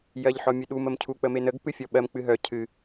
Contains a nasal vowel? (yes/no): no